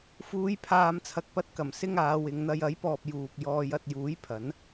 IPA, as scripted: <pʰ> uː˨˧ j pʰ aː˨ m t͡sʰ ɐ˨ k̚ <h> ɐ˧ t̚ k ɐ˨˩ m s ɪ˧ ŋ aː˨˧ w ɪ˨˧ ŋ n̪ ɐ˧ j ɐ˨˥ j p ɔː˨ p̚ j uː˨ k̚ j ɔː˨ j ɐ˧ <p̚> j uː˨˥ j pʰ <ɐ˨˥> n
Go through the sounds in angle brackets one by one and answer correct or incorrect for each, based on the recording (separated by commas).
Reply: incorrect, incorrect, incorrect, correct